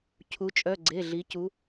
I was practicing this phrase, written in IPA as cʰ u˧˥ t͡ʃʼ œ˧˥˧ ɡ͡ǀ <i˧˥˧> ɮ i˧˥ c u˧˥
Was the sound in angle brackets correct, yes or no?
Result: no